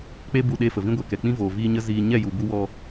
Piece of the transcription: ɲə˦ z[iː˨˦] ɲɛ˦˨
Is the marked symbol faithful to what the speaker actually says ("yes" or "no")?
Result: no